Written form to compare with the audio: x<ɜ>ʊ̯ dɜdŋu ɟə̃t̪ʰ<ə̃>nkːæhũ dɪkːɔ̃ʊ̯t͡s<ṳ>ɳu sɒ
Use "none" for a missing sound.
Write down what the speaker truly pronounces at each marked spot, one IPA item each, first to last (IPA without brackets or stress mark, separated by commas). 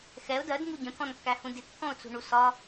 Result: ɛ, ɔ̃, ṳ